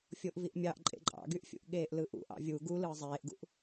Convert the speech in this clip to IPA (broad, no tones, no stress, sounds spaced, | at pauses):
fʲ o ʔ v i ʔ mʲ ɑ ʔ ǃʼ ḛ ǃʼ ɑ̰ ɡ y ʔ fʲ ṵ ʔ ɠ eː ʔ l ɯ ʔ ṵ ʔ ɑ̰ vʲ u ɡ u l ɯː zˤ eː ʔ ɡ ṵ ʔ